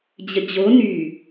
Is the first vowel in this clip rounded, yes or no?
no